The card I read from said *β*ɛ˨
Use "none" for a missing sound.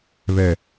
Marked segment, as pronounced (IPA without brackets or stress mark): β